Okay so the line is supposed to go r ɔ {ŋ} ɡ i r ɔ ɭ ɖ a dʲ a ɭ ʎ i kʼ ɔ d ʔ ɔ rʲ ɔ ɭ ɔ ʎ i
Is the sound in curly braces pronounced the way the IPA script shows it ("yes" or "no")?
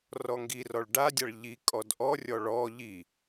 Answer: yes